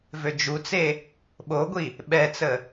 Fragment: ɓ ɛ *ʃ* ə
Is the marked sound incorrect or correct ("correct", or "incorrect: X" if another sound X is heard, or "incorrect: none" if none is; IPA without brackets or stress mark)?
incorrect: t͡s